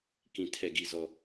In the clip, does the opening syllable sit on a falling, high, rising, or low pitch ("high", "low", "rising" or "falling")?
low